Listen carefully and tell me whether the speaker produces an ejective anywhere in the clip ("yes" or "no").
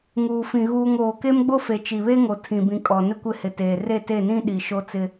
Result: yes